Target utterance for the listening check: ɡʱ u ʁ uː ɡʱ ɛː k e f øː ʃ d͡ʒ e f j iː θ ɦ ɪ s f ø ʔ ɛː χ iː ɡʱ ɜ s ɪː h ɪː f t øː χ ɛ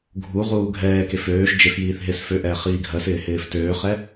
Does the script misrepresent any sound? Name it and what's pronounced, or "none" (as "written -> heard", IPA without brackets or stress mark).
none